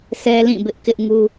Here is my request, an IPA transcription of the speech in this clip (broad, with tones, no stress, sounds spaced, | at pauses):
sʰ ɛ˦ l ĩ˦˨ b ɪ˦ ʔ k ɪ˦ ʔ ŋ u˦